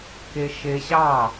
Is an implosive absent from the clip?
yes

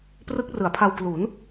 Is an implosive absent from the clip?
yes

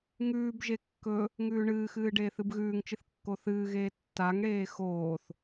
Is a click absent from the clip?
yes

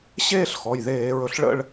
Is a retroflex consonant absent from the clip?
no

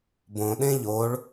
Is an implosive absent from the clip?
no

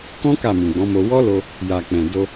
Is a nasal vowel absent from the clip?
no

